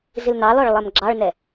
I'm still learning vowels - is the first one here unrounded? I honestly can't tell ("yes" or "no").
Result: yes